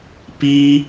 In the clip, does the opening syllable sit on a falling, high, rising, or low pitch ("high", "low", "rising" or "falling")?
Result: high